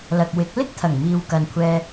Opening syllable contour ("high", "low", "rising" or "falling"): low